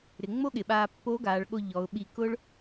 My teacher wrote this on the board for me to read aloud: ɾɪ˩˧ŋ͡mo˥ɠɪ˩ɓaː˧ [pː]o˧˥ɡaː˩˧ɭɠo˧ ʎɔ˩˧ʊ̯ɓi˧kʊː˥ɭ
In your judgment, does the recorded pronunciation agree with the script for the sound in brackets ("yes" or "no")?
yes